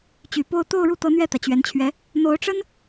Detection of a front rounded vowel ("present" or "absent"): present